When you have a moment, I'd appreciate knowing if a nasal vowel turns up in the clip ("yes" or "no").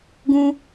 yes